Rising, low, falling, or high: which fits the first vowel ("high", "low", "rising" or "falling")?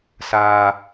low